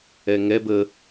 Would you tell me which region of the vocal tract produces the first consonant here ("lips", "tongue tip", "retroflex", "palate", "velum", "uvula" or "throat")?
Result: velum